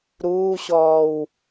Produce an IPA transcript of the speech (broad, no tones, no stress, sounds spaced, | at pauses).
ɾ uː ɕ ɔː w